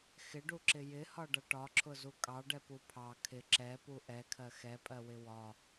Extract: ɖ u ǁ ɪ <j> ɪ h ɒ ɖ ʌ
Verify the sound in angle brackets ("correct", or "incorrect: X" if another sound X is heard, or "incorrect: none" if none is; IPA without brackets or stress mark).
correct